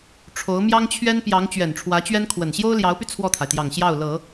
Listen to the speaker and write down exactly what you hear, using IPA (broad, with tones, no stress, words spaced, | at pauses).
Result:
ʈ͡ʂʰo˧˥ʊ̯ mjɑ˥ŋt͡ɕʰɥɛ˥n pjɑ˧˥ŋ t͡ɕɥɛ˨˩nʈ͡ʂʰwä˧˥t͡ɕɥɛ˥nkʰwə˨˩n ɕjo˥ʊ̯ljɑ˧˥ʊ̯py˧ t͡sʰwɔ˥˩t̪ʰa˩ɪ̯t̪jɑ˨˩ŋ ɕjɑ˥˩ʊ̯lɤ˨˩˦